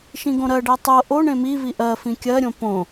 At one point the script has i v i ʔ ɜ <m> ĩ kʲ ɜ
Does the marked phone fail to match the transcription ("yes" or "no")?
yes